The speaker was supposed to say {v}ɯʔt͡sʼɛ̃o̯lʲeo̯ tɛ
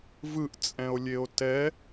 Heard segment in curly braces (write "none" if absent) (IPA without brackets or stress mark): v